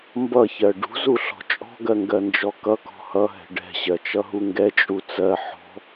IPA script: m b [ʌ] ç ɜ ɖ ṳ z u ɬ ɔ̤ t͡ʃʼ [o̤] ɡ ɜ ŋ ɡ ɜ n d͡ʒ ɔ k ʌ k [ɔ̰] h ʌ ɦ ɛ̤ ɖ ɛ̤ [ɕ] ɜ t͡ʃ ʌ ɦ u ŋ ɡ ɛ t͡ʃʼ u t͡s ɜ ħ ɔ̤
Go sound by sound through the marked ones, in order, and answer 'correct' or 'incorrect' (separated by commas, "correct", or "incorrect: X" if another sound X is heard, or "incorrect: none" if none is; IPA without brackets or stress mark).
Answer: correct, incorrect: ɔ̤, incorrect: ɔ̤, correct